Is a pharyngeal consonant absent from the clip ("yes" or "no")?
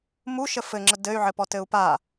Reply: no